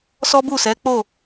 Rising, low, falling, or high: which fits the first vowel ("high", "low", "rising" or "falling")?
high